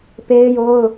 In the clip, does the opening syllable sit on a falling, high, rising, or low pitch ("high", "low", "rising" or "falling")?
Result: high